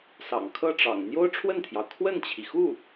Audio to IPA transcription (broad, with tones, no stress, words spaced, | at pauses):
sɑ̰˨˩ŋkʰɤ˥˩ʈ͡ʂɑ̰˨˩ŋ n̪jo˥ʊ̯ʈ͡ʂʰwə˥˩nt̪ʰjɑ˩ʊ̯ kʰwə˥˩nt͡ɕʰi˩xu˥˩